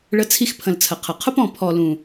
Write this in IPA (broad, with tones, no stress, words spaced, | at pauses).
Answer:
ɭə˧t͡sʰi˧xpʰə̃˨l t͡sʰə˨qʰə˨ qʰʊ˦p ɔ̃˨ pʰɔ˨lũ˨